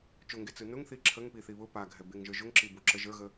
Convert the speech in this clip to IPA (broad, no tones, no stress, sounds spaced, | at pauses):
t͡ʃ ʊ ŋ ɡ e t͡s ɯ n ʊ ŋ θ i ǁʰ ə ŋ p i θ i β ʊ p a ɡʱ ɛ b e ŋ ʒ ə˞ ʒ ʊ ŋ ǁ i b o ǁ ə ʒ ə˞ ɣ ə